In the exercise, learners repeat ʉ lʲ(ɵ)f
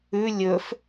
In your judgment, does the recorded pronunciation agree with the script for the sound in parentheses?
yes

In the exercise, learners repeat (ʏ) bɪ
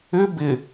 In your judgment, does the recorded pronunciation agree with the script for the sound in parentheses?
yes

